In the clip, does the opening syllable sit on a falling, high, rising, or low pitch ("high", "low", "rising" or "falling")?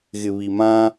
low